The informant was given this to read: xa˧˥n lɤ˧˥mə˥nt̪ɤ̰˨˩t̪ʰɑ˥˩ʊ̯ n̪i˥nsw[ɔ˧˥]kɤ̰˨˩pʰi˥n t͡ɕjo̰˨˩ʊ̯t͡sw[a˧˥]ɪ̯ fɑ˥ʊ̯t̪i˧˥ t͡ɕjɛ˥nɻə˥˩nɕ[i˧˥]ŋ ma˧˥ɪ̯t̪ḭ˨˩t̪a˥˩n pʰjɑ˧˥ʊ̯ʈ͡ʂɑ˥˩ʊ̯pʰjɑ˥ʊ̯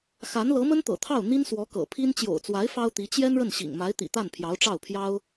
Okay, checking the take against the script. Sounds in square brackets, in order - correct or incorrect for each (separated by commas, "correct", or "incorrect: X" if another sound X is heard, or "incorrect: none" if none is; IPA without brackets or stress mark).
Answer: correct, correct, incorrect: ḭ˨˩